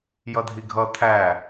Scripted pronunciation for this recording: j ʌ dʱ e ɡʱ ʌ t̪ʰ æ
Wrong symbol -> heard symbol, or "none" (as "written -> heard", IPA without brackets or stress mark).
e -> i